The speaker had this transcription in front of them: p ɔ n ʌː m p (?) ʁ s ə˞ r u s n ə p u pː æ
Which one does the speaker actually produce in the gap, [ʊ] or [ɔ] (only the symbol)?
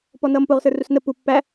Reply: ʊ